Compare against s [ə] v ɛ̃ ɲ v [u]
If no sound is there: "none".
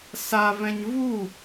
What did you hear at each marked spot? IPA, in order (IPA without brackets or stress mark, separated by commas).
a, u